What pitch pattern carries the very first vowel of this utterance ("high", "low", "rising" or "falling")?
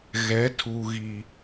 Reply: rising